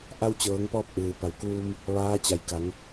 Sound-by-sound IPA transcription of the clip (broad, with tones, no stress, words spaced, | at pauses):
ʔa˧wt͡ɕɤː˩˧ŋpɔː˧p̚ ʔɯː˩ pa˩˧wkuː˧m | ʋaː˧˥ t͡ɕa˩jka˩˧ŋ